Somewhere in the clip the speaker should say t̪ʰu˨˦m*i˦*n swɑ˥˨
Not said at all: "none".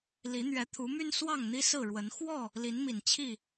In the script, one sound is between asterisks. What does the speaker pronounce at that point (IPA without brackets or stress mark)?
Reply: y˦